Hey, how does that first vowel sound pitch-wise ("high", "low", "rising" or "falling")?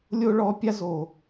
high